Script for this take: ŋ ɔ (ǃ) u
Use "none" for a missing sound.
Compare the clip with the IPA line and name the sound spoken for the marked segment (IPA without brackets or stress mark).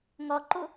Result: ǃ